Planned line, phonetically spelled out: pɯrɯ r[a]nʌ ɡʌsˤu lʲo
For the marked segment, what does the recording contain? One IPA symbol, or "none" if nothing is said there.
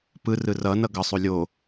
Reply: ʌ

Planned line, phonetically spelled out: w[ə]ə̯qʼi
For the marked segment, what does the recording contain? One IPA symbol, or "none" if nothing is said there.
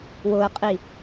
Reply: ʊ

